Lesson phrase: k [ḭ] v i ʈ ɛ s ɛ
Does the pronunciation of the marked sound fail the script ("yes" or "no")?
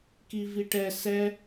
yes